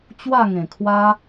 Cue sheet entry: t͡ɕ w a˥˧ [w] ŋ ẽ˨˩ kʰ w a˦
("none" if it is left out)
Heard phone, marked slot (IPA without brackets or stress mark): none